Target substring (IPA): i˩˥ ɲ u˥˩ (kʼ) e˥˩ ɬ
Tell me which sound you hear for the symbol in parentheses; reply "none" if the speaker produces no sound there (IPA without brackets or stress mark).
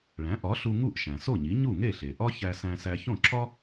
ŋ